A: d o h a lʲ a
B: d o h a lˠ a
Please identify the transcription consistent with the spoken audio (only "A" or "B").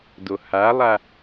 B